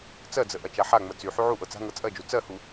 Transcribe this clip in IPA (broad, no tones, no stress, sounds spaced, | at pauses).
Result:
t͡s ɜ d͡z ə ʔ ɐ t͡ʃ a ħ a ŋ͡m ə t͡s y ħ y ʕ u ʔ ɤ t͡s a̤ ŋ ɤ t͡sʼ ɜ d͡ʒ u t͡s ɜ h u